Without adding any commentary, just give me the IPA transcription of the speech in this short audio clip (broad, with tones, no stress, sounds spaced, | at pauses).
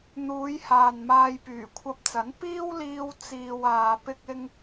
n̪ uː˨˧ j h aː˨ n m aː˧ j p yː˨˩ kʷʰ ɐ˧ p̚ t͡s ɐ˨˥ n p iː˥ w l iː˧ w t͡s iː˨ w aː˨ p ɪ˧ k̚ ɪ˧ ŋ